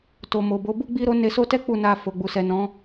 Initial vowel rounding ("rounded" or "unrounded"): rounded